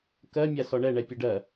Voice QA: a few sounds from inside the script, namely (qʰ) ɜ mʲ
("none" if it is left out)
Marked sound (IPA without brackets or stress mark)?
k